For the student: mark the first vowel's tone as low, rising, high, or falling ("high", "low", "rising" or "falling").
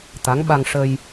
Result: rising